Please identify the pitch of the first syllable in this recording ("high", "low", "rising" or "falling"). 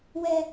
high